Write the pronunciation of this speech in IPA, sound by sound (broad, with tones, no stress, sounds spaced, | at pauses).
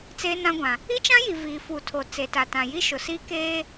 t͡s eː˦ n ã˦ ɡʷ ã˨ | i˦ t͡ʃ ã˦ j i˨ v iː˨ f u˨ tʰ o˨ t͡s e˨ t a˨ t ã˨ j i˦ ʃ ʊ˨ s i˦ k eː˦